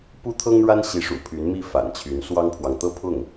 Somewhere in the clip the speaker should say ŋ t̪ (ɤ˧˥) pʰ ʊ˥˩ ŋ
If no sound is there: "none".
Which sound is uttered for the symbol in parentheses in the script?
ɤ˥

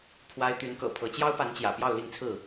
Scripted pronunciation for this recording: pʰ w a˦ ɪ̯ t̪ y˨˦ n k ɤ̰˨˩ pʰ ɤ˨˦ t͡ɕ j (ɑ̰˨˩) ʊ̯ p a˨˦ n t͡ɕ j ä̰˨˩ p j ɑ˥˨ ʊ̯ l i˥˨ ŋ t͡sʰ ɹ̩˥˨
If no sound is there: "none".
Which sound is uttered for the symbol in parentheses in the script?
ɑ˦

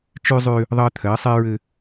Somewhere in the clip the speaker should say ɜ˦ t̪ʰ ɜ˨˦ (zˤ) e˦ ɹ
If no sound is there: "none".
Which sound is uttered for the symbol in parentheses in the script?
sˤ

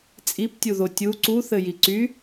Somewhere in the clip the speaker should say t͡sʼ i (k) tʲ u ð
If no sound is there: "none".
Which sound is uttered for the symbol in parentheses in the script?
p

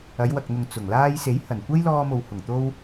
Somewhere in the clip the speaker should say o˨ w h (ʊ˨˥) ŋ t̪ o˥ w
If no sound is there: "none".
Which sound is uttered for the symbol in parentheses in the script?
ʊ˨˩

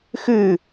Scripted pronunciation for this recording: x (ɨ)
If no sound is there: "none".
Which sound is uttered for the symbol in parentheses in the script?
ɨ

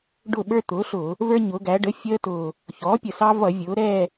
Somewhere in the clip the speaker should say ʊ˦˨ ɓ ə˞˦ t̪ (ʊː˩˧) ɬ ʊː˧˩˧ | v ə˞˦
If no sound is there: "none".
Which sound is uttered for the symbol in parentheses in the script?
ʊː˩˥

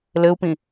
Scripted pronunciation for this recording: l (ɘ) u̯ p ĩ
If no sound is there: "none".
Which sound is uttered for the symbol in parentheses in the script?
ɘ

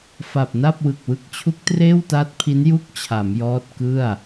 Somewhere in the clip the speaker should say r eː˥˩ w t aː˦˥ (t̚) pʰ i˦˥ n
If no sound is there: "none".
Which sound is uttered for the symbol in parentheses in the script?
t̚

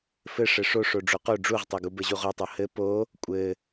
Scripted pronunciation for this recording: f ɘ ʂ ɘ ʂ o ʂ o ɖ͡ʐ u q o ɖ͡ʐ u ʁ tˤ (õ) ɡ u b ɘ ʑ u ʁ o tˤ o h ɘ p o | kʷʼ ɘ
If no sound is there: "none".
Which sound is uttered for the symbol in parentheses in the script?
o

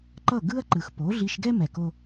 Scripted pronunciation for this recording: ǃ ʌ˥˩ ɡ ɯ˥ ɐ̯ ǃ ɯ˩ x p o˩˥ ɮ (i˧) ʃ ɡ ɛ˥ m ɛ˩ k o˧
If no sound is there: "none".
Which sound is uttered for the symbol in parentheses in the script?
i˧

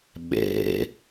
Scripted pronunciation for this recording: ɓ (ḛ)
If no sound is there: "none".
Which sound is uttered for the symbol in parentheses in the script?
ḛ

